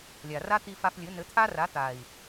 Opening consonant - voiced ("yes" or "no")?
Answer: yes